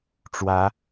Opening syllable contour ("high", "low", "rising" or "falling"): rising